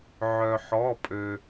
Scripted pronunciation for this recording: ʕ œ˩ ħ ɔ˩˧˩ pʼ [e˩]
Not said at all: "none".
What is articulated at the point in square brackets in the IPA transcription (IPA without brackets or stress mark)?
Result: ø˩